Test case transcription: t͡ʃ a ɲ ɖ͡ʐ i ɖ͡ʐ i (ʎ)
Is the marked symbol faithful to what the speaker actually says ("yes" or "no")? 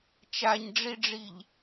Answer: yes